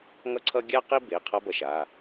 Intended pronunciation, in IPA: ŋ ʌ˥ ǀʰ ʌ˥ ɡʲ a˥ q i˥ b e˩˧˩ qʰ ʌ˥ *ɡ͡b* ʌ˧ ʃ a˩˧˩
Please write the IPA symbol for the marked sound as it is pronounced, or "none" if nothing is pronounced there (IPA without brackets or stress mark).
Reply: b